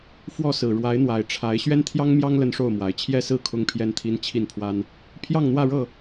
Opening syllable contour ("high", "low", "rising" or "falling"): falling